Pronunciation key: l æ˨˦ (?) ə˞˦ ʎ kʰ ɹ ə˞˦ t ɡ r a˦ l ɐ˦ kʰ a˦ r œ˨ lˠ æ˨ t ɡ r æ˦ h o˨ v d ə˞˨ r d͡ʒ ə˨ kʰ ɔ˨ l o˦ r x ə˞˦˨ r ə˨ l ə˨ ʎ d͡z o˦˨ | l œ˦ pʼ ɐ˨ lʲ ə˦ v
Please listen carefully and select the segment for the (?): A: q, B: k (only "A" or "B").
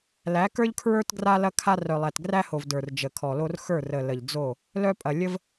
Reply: B